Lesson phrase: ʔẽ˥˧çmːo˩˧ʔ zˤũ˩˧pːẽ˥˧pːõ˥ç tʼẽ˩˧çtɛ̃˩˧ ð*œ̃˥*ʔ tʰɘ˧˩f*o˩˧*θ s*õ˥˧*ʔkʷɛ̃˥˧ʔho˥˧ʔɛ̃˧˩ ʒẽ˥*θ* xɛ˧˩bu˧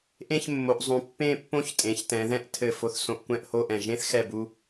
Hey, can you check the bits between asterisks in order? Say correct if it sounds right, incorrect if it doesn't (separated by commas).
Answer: incorrect, incorrect, incorrect, correct